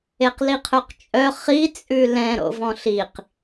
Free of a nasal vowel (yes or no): no